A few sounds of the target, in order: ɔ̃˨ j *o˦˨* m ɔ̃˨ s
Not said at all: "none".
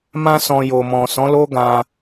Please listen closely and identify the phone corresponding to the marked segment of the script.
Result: o˨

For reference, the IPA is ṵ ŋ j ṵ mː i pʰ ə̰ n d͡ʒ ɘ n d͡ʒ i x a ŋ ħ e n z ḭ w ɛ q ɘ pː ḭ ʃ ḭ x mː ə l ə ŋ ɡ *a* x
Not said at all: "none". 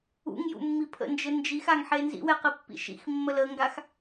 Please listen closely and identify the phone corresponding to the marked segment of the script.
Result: a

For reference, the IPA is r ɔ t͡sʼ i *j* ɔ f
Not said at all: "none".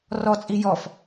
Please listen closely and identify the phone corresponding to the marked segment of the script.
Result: j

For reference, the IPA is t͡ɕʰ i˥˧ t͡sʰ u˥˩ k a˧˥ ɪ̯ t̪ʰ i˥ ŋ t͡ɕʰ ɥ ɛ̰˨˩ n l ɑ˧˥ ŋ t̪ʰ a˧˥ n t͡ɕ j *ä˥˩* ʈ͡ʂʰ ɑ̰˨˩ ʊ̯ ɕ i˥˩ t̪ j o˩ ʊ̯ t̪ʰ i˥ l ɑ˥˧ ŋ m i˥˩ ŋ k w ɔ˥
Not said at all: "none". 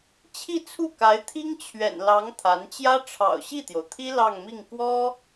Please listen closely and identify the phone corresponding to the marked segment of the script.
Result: ä˥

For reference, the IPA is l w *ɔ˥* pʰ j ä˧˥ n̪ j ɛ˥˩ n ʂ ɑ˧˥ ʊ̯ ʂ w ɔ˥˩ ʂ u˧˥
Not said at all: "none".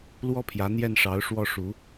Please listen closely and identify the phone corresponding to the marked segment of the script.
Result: ɔ˥˩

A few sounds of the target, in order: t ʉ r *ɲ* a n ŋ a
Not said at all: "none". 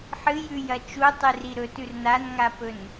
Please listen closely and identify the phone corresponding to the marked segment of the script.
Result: n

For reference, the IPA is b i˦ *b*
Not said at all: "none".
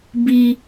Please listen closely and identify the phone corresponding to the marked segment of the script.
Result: none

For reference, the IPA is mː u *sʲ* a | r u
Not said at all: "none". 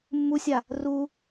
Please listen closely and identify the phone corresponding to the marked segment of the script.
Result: sʲ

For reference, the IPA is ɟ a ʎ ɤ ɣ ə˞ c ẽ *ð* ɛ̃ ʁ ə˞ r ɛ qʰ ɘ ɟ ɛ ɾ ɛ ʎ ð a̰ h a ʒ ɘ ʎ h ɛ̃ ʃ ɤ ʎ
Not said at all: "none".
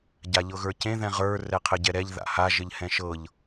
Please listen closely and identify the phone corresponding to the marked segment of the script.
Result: ð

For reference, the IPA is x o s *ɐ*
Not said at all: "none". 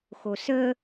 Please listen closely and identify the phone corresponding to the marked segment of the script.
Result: ə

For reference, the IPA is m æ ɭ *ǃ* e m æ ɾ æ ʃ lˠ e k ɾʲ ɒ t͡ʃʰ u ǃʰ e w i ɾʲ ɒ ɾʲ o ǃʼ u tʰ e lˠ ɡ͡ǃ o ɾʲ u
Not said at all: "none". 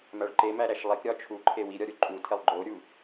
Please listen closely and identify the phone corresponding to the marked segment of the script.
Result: ǃ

